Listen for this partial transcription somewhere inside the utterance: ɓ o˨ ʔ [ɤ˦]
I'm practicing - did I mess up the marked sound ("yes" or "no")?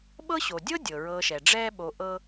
no